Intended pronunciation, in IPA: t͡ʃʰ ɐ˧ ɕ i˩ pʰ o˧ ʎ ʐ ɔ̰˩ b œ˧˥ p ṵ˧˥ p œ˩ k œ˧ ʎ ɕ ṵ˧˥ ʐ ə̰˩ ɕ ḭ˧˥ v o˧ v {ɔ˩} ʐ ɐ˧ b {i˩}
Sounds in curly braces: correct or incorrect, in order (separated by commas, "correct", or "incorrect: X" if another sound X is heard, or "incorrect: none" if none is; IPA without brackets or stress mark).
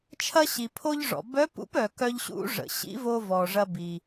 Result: correct, correct